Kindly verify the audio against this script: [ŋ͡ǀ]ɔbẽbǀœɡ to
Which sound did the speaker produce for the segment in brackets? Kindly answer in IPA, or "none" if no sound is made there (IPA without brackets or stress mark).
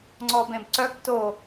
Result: ŋ͡ǀ